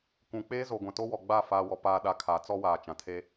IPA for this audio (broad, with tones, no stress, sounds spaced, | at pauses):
kʷ ũ˨ k͡p eː˦ z o˨ ɡʷ ã˨ t o˦ w ɔ˨ ɡ͡b a˦˨ f aː˨ w ɔ˨ p aː˨ ɗ a˨˦ kʰ a˨˦ t͡s ɔ˦ w aː˨ t͡ʃ ã˨ tʰ e˦